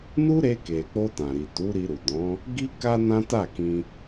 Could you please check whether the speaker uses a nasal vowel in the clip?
yes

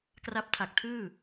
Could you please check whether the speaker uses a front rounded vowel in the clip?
no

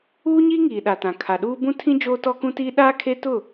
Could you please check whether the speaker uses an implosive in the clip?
yes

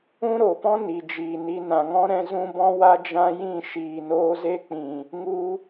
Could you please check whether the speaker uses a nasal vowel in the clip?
yes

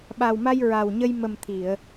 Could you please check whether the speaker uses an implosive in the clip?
yes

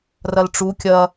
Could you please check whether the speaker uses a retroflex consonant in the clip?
yes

